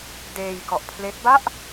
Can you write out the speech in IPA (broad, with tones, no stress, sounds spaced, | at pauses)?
d eː˧ j k ɔ˨˩ ʔ pʰ l e˦˥ k̚ b a˥˩ ʔ